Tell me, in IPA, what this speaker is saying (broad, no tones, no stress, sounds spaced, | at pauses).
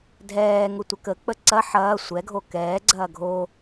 dʱ ɛː ŋ ʊ tʷ ə k ə k͡p ə ǀ ɐ ħ ɐː sʷ ɛ ɡʱ o k ɛː ɡ͡ǀ ɐː ɡʱ o